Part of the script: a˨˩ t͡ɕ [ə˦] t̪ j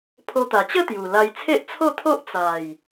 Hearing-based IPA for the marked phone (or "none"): ə˥˧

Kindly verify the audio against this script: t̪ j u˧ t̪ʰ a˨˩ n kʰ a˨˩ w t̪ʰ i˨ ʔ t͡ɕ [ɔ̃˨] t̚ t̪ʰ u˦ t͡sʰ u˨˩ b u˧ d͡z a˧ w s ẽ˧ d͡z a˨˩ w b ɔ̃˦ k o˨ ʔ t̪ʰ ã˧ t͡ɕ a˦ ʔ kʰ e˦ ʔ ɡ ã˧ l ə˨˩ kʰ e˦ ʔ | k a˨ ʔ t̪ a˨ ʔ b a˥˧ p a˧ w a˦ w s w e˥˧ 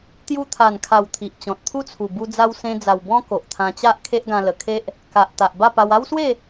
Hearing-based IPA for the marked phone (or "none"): ɔ̃˨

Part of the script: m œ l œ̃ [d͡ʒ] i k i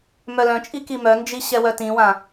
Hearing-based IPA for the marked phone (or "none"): t͡ʃʼ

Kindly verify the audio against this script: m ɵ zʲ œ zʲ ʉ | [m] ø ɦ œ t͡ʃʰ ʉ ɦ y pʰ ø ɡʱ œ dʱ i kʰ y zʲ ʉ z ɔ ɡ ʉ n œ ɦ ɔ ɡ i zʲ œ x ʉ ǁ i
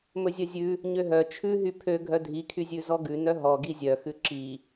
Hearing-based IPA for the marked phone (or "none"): ɲ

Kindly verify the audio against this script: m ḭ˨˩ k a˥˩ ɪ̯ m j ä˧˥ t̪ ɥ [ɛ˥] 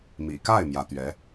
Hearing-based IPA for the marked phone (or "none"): ɛ˧˥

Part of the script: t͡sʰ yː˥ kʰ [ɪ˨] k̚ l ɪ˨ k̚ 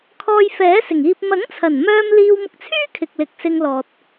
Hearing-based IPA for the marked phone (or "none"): ɪ˨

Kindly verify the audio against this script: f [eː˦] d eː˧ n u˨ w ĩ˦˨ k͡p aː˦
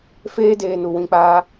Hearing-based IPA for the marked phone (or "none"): eː˦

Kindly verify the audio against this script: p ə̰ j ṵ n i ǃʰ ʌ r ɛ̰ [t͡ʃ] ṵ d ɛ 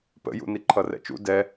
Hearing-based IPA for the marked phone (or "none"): t͡ʃ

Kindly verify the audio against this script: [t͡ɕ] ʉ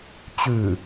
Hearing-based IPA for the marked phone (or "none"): t͡ɕ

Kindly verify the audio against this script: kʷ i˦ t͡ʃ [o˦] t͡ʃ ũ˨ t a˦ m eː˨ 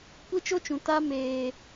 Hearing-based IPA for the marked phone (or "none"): o˦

